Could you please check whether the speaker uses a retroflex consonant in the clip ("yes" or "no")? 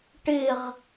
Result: yes